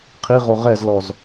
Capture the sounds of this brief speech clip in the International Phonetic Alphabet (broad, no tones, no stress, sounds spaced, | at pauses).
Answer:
qʰ i ʁ o ʁ ɛ z l ɔ z